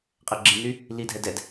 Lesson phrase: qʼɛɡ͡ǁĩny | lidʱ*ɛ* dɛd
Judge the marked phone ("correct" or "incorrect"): correct